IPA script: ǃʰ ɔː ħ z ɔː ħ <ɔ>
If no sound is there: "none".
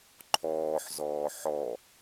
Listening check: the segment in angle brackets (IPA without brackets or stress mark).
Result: ɔ